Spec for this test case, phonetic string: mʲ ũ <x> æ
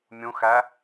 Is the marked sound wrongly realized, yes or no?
no